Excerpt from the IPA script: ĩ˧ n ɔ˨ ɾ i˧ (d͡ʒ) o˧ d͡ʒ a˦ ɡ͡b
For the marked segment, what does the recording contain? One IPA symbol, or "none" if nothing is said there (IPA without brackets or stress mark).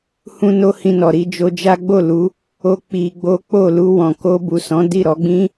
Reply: d͡ʒ